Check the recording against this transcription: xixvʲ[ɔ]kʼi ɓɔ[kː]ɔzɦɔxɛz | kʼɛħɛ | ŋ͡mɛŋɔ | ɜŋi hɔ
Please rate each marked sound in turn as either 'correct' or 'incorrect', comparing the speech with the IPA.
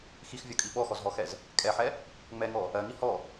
correct, incorrect

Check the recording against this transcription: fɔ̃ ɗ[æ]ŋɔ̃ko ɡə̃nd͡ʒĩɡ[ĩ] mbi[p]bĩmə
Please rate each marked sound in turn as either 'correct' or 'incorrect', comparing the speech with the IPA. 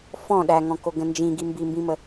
correct, incorrect, incorrect

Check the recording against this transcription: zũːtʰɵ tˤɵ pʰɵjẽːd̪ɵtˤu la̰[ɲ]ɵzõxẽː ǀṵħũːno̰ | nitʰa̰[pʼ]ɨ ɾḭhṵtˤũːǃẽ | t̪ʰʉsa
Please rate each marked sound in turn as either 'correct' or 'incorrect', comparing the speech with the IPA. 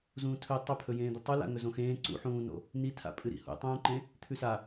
incorrect, correct

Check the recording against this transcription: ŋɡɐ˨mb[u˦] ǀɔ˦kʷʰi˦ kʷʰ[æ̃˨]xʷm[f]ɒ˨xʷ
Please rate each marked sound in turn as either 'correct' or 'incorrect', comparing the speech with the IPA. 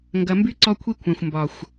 incorrect, correct, incorrect

